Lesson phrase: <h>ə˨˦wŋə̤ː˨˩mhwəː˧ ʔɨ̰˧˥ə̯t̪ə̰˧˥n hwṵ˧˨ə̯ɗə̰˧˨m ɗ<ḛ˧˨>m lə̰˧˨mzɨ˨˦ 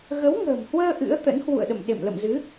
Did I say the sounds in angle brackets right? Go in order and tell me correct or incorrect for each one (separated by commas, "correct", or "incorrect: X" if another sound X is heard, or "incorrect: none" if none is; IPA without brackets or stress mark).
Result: incorrect: ɣ, correct